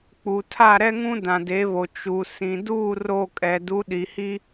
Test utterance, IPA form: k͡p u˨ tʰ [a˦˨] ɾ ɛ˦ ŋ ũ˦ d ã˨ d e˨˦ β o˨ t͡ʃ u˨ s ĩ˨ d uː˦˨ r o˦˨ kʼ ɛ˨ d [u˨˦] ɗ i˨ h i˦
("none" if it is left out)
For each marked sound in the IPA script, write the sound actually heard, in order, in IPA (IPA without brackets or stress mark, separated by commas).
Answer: a˦˨, u˨˦